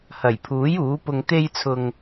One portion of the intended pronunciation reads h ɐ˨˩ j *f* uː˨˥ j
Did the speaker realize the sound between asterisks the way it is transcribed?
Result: no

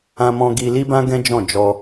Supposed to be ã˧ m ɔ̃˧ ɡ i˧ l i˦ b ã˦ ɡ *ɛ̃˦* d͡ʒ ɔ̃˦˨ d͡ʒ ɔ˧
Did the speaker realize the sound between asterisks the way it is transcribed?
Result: yes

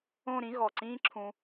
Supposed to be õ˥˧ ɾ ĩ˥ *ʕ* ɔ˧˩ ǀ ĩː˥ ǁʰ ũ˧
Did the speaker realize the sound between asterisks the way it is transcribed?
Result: no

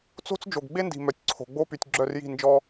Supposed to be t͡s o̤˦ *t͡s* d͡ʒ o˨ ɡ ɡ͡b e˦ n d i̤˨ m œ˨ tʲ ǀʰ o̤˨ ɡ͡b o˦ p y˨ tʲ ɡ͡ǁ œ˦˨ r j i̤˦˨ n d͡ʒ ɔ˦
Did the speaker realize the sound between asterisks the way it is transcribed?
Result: yes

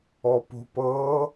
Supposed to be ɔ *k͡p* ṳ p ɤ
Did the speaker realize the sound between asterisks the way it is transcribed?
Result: no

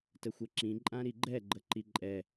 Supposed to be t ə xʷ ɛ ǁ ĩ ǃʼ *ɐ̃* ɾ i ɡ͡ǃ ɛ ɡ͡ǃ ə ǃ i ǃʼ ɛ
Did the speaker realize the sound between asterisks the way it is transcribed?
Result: no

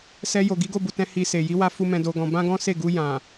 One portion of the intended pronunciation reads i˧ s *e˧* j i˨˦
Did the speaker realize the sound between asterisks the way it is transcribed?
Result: no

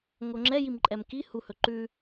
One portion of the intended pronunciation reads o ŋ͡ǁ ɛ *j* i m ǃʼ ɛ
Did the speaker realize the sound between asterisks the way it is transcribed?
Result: yes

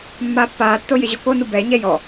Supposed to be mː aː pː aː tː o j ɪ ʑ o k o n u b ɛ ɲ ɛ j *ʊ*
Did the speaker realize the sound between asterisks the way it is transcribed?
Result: no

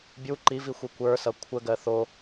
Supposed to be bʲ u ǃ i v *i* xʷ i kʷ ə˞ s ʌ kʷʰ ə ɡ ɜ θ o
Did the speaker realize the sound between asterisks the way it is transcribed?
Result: yes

